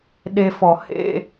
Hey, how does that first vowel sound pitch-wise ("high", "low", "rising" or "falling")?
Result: low